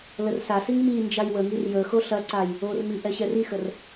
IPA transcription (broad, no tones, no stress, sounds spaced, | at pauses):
l ə r s a s i ŋ m i n d͡ʒ a j w ə ŋ i r j ə x o ɬ ɐ ǀ a j | o r m i ʔ ɛ ɕ ɛ r i x ə r